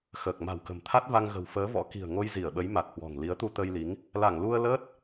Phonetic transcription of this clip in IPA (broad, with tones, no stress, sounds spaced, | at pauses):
x əː˨˩ k̚ m a̤˨˩ w k ə̤˨˩ m t̪ʰ a˦˥ t̚ v a˧ ŋ ɣ ə̤˨˩ w f əː˨˦ v ɔ̰˧˥ k i̤˨˩ ə̯ ŋ o˧ j z i˧˩ ə̯ ɓ ə˨˦ j m a˨˩ t̚ h w ɔ̤˨˩ ŋ l i˨˦ ə̯ t̪ u˧ t̪ ə˧ j l i˨˦ ŋ | l a˧˩ ŋ l u˧ ə̯ l əː˦˥ t̚